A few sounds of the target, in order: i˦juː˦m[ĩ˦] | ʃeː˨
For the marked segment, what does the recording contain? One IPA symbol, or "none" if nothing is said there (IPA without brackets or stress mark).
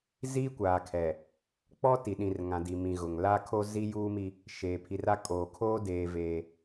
i˦